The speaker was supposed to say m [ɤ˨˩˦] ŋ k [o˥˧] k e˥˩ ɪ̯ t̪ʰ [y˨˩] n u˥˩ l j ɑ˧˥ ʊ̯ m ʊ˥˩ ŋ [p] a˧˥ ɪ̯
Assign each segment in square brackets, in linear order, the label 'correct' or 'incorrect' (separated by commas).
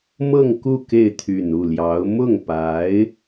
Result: incorrect, incorrect, correct, correct